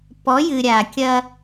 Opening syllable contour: rising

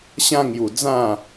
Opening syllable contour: high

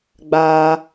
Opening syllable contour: high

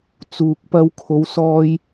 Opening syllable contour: low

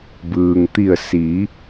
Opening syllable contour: low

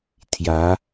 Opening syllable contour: rising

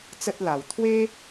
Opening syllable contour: high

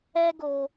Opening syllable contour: high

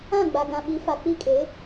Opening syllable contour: falling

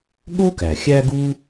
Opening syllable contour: high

